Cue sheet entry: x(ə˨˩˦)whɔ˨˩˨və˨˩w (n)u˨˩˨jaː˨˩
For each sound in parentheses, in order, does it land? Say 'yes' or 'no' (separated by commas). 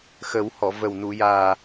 yes, yes